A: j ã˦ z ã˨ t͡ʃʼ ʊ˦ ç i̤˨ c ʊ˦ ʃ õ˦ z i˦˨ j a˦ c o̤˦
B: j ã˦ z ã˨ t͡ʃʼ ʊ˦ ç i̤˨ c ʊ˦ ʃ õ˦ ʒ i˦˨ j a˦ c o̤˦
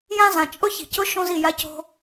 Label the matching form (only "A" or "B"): A